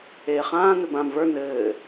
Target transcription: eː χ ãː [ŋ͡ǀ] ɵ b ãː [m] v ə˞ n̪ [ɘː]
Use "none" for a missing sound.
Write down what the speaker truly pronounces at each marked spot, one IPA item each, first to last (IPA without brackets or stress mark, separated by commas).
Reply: n̪, m, ɘː